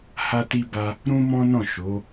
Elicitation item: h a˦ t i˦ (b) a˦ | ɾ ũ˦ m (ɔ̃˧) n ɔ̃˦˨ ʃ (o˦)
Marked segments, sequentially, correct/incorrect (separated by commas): correct, incorrect, incorrect